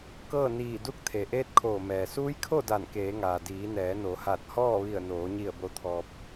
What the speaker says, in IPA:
k ɤː˥˨ n iː˧˩ d u˧˥ k̚ t̪ʰ e˩ ʔ eː˧˥ t̚ kʰ oː˧˩ m ɛː˩ s uː˧˥ j kʰ o˥˨ d a˧˩ n k eː˩˧ ŋ aː˩ d iː˩˧ n ɛː˩˧ n o˩˧ h a˧˩ t̚ h ɔː˥˨ ʋ i˧˩ ə̯ n oː˩˧ ɲ i˧˩ ə̯ b o˧ t̪ʰ ɔː˧ p̚

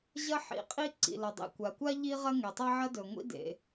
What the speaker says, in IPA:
ʑ ɐ˥ ħ ḭ˩ qʼ i˥ ǀ ḭ˩ l ɐ˩ dˤ ḭ˩ kʷ a˩ kʷ a˥ ʎ i˥ ʁ ɐ˥ ŋ e˩ tˤ a˥ ʕ ɐ˥ d ɵ˩ ŋʷ ḭ˥ d ḛ˩

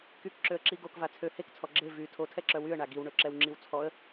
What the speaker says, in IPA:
k y k ǁ ø ə̯ ǁ i ɡ o k v a t͡sʰ ø h e k t͡sʰ ɔ ɡ͡ǁ e v y tʰ o tʰ ɛ ǁ œ w y ə̯ ɳ a ɡ i w ɳ ø ǁ ɛ w ŋ͡ǁ i w t͡sʰ ɔ ə̯

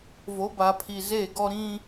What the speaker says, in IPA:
v o˨˦ b a˨ pʰ i˨ z e˦˨ ɡ ɔ˦ ɾ ĩ˦

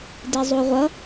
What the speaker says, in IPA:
d i zˤ u ʁʷ ʌ

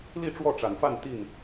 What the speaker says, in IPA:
l i˥˨ ʈ͡ʂ w ɔ˥˨ ʈ͡ʂ a˨˩ n f a˥˨ n t̪ i˥˨ n

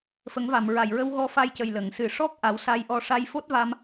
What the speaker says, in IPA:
f ə˨˩˦ ŋ v a˨˩˨ m ɹ a˨˩ j ɹ ə˧ w ɣ ɔ˧ f a˧ j c ə˨˩ j l ə˨˩˨ ŋ s ɨ˨˩˨ ʂ ɔ˦˥ k̚ ʔ a˨˩˦ w s a˧ j ʔ ɔ˧ ʂ a˧ j f o˦˥ t̚ v a˧ m

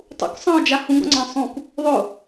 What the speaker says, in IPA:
tˤ ṵ k sˤ ɑ̃ ʊ̯ d͡ʒ a h ũ ɡ ɔ̰ ŋ͡ǀ ɑ̃ sˤ ũ k | ðˤ ʊ

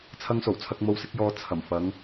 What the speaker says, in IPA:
t͡sʰ ɐ˧ ŋ s o˨˩ w t͡sʰ ɐ˧ k̚ m o˧ w s ɪ˨˥ k̚ j ɔː˧ t͡sʰ ɐ˨˩ m f ɐ˨˧ ŋ

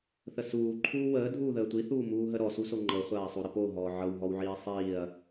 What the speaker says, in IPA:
θ ə s uː ǃʰ uː w əː dʱ uː ð əː tʷ i θ uː m uː ɦ ə ɾ ɔ s u s o ŋ͡ǃ ɤ χʷ aː sˤ o ɾ ə p o ɦ ɔː ʕ ɤ w ɦ ɔ w ʕ iː sˤ iː ɐ̯

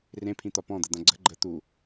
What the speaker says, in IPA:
r ẽ pʰ ĩ t̪ ɒ p ɔ̃ d̪ ə d̪ ã ɡ͡ǀ ə̤ ɡ͡ǃ ə t̪ u

